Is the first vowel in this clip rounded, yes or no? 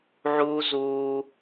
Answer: yes